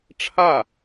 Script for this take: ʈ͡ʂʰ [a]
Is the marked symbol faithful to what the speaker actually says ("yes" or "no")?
yes